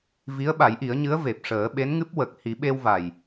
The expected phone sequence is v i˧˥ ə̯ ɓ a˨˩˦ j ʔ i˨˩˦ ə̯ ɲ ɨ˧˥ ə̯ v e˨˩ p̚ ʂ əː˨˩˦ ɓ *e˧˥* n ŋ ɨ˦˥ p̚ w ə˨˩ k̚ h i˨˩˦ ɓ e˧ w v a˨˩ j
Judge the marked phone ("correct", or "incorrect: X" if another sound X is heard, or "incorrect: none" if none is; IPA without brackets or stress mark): correct